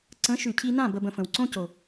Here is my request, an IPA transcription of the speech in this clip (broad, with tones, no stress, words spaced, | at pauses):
ǀə̃˨˦ʃʉ˨cʰi˧nã˦˨ bə˦bə̃˧fə̃˨w ǀõ˦co˨